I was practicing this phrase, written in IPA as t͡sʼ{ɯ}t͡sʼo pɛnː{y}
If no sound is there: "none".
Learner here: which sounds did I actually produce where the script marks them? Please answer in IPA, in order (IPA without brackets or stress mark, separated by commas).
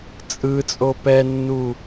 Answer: ɯ, u